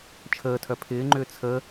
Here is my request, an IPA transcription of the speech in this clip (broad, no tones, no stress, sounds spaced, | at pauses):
t͡ʃʰ əː tʰ œ pʰ ɪː ŋ͡ǃ ʏː t͡sʰ ə